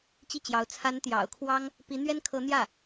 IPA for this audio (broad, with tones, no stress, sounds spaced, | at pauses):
t͡ɕ i˥˩ t͡ɕ j ɑ˧˥ ʊ̯ t͡sʰ a˧˥ n t̪ j ɑ̰˨˩ ʊ̯ kʰ w ɑ˥ ŋ | p i˧˥ n̪ ɥ ɛ˥ n kʰ ɤ˧˥ n̪ j ä˥˩